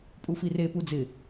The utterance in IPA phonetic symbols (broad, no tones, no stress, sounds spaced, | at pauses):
pʼ u f i r e p u d͡z ɪ